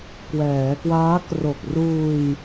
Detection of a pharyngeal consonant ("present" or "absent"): absent